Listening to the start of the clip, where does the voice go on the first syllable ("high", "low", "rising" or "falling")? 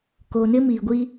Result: low